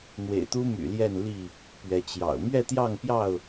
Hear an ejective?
no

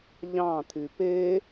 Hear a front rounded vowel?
yes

